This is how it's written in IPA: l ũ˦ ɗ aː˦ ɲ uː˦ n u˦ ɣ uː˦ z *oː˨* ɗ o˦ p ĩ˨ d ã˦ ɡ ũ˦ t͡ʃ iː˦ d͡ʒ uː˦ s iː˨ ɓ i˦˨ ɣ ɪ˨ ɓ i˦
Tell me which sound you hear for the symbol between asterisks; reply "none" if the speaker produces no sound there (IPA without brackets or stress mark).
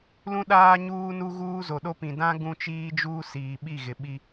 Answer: o˨